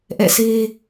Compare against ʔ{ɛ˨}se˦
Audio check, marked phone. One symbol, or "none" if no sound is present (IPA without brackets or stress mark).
ɛ̰˦˨